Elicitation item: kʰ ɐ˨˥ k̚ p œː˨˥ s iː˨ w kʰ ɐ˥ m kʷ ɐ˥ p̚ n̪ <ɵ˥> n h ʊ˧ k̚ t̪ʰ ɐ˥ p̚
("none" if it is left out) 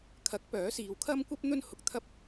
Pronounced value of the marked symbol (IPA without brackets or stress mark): ɵ˥